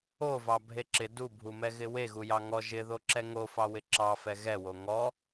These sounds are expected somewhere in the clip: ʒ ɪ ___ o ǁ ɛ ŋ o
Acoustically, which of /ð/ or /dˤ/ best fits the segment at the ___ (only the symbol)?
ð